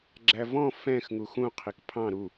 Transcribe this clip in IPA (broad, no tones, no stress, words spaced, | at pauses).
ɡ͡ǁævɔ̃ fɛ̃x ŋuxũ qʰikpʰɑ̃ ɾu